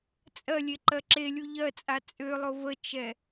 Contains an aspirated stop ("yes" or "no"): no